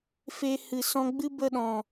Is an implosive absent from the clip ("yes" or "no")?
no